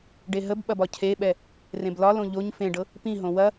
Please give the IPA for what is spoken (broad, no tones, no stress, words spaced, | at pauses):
ɖeɦəbɓɐb ɒcʰeɓɛ | rẽblɒlõ ʎoɲ fẽɖɤ | pĩɦõ wɐ